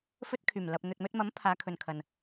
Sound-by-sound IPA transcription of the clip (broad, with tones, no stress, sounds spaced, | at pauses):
f ɵ˧ t̚ kʰ yː˨˩ m l ɐ˨ p̚ n̪ ɵ˨ t̚ m ɵ˧ t̚ m ɐ˨˥ m pʰ aː˨˧ kʰ ɵ˨ n kʰ ɐ˨ n